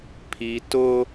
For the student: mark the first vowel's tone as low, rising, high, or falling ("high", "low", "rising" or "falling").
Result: low